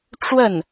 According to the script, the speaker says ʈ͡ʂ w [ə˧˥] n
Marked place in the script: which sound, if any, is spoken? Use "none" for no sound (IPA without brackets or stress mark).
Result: ə˥˩